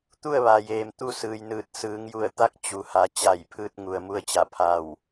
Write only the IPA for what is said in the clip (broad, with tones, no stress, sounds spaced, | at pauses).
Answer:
t̪ u˥˨ ə̯ ʋ a˩ j eː˩ m t̪ u˥˨ s ɯː˩ j n ɯː˧˩ t̚ s ɯː˩˧ ŋ j u˧˩ ə̯ t̪ a˧˥ k̚ t͡ɕ u˩ h a˩˧ t͡ɕ a˧˩ j pʰ ɯː˧ t̚ ŋ u˩ ə̯ m u˧ ə̯ t͡ɕ a˧˩ pʰ a˧˩ w